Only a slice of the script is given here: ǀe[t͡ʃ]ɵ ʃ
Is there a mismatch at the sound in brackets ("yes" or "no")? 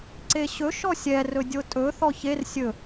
yes